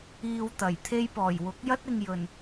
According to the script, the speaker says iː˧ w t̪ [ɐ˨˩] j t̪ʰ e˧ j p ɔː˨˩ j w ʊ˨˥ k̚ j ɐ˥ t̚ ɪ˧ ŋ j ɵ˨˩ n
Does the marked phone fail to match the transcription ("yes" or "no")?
no